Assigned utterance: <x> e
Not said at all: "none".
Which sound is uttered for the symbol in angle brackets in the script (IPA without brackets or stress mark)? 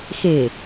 x